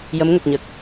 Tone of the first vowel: rising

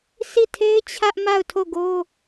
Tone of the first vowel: falling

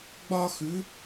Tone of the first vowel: high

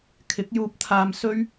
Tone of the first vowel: rising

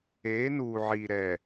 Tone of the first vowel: rising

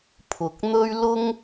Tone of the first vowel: low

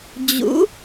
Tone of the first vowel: rising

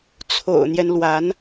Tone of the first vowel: low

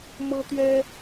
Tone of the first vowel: high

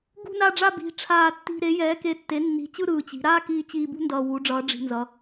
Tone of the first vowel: falling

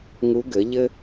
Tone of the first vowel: rising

